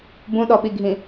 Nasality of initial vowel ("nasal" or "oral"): nasal